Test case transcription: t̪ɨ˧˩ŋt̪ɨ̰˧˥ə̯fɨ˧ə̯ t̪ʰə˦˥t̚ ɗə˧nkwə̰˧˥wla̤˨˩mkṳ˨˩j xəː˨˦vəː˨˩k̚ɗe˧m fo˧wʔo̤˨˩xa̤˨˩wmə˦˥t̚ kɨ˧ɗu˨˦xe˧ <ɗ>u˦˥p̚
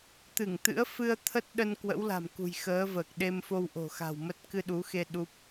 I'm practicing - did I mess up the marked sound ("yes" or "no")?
no